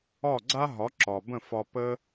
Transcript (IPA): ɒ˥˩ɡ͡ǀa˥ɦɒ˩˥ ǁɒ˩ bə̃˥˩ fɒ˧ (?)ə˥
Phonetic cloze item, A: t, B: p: B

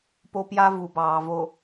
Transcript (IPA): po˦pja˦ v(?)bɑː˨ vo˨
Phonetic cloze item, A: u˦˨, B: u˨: B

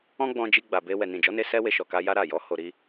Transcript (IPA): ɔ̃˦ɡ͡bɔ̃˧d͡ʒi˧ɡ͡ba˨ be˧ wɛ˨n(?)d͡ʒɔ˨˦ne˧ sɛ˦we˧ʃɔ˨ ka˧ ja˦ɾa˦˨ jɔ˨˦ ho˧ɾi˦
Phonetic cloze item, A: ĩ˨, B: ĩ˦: A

